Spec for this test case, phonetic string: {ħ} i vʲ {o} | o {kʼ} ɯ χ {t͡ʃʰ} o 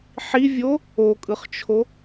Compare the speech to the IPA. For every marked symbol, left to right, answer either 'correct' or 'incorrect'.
correct, correct, correct, correct

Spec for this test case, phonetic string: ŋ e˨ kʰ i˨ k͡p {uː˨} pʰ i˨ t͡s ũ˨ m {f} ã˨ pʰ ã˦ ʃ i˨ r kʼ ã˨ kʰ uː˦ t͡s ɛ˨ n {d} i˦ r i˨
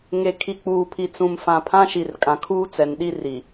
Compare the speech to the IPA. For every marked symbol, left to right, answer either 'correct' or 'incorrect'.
correct, correct, incorrect: ɗ

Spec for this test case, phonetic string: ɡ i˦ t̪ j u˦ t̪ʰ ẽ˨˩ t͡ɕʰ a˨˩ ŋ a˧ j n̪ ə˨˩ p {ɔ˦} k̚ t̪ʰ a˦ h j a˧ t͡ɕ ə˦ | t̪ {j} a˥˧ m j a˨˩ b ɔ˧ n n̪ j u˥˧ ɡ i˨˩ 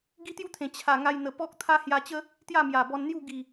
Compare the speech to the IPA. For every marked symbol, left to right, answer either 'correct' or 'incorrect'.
correct, correct

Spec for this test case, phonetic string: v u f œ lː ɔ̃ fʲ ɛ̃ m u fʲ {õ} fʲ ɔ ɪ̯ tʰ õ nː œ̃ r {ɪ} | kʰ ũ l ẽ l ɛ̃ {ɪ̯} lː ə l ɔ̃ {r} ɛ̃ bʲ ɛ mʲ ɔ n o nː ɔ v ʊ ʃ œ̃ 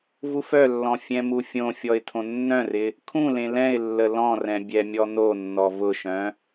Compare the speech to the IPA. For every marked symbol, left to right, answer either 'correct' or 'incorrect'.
correct, correct, correct, correct

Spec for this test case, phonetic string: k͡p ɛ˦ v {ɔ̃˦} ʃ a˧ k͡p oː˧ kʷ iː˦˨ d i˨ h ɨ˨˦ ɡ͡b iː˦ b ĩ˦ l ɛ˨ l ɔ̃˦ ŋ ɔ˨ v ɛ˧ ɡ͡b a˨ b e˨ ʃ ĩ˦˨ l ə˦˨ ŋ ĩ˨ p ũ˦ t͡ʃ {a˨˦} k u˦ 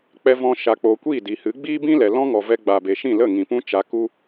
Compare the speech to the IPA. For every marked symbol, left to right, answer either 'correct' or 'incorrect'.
correct, incorrect: a˧

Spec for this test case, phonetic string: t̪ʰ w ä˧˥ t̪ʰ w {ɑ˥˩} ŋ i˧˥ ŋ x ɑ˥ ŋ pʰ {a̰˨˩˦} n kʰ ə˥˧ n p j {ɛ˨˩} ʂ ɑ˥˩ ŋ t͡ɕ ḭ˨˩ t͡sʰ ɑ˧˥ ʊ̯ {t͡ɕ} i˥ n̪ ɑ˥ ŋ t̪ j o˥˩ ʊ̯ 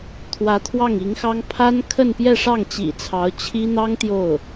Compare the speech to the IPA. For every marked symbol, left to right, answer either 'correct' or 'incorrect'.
correct, incorrect: a˥, incorrect: ɛ˥˧, incorrect: t͡ɕʰ

